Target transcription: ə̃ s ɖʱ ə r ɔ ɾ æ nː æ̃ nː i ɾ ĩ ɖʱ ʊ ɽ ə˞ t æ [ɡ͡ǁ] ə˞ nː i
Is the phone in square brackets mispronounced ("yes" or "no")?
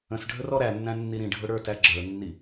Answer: no